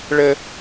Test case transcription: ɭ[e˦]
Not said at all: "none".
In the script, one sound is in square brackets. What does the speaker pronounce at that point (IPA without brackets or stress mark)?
ɘ˦